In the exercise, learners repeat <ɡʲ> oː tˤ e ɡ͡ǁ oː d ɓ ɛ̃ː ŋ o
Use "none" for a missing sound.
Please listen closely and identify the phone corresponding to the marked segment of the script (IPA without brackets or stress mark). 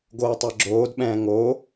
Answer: ɡ